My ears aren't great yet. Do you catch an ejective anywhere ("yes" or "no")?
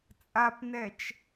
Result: yes